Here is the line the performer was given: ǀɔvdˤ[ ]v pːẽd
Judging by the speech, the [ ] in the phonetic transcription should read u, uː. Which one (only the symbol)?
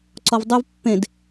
u